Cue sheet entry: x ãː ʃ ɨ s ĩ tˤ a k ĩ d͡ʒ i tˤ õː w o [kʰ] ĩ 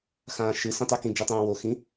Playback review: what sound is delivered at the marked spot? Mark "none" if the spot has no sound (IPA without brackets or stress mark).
x